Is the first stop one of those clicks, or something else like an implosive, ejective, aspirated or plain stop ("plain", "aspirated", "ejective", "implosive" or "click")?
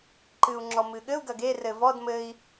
click